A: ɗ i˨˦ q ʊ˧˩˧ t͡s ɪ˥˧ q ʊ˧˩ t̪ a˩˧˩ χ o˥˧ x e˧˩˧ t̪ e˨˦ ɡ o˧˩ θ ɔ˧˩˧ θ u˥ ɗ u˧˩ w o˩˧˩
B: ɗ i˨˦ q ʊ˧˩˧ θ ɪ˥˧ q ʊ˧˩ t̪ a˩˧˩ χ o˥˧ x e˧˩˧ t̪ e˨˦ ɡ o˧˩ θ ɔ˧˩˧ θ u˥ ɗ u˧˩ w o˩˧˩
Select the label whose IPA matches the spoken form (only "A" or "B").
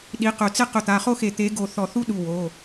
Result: A